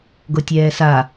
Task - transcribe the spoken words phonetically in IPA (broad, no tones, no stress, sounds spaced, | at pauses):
ɡ o tʲ ɛː s a